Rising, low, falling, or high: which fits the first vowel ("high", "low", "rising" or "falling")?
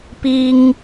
high